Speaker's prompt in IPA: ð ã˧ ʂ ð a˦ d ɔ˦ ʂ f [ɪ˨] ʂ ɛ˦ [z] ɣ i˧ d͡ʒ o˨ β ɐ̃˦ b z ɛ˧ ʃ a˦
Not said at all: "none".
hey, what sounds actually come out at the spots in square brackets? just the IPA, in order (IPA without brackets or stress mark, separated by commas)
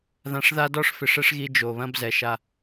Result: ɪ˨, ʂ